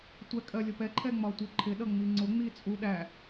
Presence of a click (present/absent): present